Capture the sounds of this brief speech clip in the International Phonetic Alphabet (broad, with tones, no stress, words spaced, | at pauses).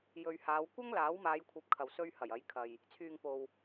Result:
jɵ˨ɥ haː˨˧wkʷɐ˥ŋ laː˨˥wmaː˨˧jkʷʰɐ˨˥p̚ kʰɐ˨wsɵ˧ɥ hɐ˨˩jɐ˨˥jkʰɐ˨j | t͡sʰyː˨ŋpo˨w